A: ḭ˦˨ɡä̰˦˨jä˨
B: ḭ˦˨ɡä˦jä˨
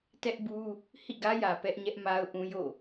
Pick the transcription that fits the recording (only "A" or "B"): B